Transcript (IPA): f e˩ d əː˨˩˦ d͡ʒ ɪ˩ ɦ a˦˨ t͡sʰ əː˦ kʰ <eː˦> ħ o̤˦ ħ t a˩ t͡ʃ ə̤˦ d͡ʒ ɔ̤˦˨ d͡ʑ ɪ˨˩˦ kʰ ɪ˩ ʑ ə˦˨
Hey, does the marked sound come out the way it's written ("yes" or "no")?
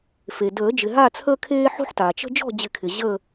yes